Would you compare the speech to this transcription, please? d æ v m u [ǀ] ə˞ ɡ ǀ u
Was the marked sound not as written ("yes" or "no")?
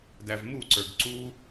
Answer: no